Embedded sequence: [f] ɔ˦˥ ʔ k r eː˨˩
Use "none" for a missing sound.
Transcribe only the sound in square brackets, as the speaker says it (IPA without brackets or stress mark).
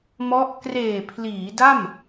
m